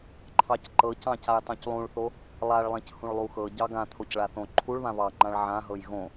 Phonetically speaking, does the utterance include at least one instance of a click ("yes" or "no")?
yes